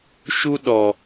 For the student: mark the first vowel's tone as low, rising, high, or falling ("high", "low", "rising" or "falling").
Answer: high